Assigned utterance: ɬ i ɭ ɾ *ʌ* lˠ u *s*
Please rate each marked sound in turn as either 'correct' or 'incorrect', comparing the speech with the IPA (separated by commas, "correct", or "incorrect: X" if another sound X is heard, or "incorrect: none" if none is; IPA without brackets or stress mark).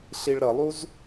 correct, incorrect: z